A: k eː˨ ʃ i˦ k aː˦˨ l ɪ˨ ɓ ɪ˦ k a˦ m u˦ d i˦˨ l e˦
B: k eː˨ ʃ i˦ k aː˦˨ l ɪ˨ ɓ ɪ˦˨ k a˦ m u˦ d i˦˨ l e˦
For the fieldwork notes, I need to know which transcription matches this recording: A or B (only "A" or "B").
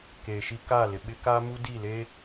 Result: A